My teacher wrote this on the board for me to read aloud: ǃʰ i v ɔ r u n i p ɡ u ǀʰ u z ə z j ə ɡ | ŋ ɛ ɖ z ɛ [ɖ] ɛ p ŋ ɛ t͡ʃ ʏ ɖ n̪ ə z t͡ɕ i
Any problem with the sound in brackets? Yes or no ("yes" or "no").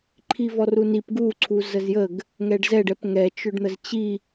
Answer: no